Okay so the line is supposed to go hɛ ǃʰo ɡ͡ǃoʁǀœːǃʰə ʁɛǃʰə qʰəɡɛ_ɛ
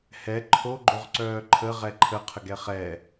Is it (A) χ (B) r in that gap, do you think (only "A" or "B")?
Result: A